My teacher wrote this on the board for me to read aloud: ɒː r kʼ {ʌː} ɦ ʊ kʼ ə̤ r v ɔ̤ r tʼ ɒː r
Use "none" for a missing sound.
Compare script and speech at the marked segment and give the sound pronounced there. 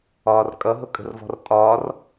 ʌ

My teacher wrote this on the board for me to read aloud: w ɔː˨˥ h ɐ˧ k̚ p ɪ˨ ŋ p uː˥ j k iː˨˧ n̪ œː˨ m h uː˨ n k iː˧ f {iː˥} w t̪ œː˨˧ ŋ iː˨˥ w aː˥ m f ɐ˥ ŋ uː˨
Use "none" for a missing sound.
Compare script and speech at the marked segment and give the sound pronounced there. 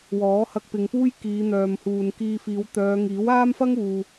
iː˨˧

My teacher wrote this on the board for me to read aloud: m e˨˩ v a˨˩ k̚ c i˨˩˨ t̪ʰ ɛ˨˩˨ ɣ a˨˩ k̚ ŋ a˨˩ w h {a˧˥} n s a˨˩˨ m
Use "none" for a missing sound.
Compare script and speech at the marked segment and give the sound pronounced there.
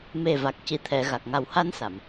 a˧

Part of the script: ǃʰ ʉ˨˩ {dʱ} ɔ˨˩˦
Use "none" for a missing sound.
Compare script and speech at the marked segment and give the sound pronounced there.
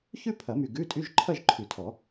tʰ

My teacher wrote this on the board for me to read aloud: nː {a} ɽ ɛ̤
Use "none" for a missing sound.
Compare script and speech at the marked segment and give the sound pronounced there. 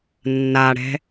a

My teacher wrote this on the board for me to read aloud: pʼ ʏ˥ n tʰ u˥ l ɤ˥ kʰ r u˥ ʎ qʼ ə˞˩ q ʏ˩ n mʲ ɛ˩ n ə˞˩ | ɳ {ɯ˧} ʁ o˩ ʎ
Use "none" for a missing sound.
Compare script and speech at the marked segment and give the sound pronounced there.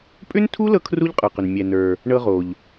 ɤ˧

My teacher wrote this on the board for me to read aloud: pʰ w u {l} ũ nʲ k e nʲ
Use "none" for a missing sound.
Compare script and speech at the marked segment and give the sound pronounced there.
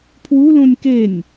l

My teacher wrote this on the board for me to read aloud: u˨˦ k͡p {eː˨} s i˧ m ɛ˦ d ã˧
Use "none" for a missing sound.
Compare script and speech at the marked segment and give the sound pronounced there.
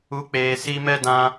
eː˨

